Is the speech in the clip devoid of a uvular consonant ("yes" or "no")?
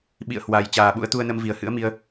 yes